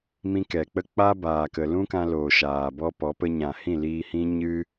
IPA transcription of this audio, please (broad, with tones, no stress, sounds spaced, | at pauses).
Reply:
m ĩ˧ k ɛ˨ k͡p ə˦ k͡p a˦ b aː˨ k ə˨ l ũ˦ k ã˧ l oː˨ ʃ aː˨ b ɔ˦ p ɔ˨˦ p ə˧ ɲ ã˨ h ĩ˦˨ l iː˧ h ĩ˦ ɲ ɨ˦